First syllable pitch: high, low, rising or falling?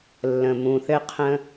low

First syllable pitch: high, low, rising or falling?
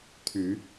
low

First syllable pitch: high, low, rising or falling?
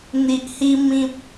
low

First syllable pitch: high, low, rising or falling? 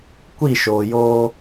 falling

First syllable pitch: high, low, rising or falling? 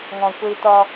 low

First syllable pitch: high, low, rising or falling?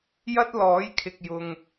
high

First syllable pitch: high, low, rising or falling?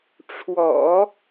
low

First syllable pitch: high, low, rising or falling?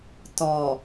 low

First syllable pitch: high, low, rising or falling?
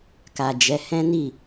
low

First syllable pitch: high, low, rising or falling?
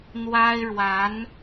high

